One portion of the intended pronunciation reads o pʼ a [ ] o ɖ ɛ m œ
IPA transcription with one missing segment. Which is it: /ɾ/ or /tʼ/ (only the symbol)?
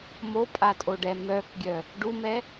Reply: tʼ